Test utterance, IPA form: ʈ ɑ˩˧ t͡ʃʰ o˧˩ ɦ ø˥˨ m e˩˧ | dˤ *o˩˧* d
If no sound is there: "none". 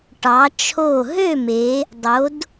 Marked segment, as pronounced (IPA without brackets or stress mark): o˩˧